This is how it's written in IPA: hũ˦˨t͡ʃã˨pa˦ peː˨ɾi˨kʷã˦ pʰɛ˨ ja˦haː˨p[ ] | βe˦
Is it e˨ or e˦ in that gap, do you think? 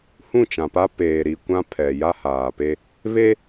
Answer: e˦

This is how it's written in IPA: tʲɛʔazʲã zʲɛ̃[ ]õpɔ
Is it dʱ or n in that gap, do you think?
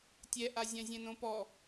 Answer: n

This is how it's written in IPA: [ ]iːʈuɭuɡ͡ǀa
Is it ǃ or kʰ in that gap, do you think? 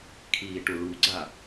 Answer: kʰ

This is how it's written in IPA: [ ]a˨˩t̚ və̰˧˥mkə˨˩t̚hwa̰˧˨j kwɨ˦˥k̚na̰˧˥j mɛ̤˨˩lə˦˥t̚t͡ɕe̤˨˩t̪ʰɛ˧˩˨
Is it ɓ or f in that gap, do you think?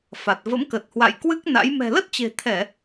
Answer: f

